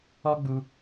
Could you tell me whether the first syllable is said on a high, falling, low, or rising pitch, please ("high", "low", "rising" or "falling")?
high